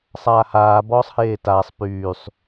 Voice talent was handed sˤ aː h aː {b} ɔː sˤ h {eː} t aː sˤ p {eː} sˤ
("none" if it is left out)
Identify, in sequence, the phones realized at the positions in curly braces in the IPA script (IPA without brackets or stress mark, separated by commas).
b, eː, yː